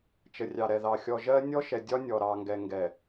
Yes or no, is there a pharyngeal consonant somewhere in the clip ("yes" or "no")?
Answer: no